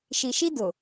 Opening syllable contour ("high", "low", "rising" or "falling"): low